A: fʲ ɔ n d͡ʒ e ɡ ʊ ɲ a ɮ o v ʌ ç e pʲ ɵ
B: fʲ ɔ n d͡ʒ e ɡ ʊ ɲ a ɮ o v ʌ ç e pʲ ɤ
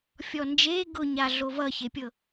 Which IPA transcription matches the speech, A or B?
B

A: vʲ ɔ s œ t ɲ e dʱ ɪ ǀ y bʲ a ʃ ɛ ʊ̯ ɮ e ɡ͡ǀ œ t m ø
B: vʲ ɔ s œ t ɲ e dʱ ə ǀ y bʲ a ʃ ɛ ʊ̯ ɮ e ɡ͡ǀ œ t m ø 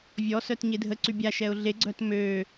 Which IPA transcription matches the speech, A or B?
B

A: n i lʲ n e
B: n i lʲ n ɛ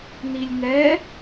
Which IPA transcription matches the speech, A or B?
B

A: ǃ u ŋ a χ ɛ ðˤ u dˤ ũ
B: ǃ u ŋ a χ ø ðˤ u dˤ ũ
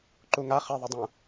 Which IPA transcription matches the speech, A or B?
A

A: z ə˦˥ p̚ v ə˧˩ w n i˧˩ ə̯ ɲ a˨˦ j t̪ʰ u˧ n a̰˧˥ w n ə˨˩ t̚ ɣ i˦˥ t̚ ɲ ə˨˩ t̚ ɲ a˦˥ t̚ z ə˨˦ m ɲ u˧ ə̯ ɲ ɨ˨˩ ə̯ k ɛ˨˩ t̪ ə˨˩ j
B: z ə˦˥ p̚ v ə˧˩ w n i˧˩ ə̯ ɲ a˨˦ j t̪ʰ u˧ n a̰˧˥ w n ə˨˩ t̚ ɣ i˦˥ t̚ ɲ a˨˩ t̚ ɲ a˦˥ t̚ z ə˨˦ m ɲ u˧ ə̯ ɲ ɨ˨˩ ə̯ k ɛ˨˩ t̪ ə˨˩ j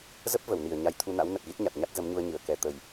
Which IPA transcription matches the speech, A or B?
B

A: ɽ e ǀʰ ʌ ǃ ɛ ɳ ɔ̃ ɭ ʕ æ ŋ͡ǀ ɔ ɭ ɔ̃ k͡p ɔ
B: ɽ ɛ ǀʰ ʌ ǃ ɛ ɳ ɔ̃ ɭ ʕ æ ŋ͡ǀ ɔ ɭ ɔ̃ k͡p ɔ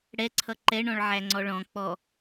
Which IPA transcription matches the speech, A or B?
B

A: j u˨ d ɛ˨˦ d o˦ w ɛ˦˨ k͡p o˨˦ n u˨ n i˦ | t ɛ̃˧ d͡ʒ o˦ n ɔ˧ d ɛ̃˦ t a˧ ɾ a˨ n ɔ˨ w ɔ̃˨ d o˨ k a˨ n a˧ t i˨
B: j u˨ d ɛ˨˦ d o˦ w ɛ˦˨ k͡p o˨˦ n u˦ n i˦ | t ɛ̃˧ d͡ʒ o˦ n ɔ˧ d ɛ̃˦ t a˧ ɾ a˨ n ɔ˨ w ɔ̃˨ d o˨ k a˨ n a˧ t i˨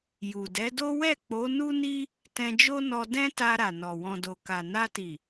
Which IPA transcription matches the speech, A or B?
B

